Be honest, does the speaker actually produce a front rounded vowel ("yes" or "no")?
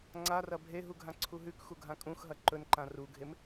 no